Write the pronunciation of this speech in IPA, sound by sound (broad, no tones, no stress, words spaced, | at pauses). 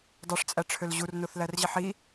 dˤyʂt͡sʼæʈ͡ʂʰøl ʑurnoθlærʑiħ i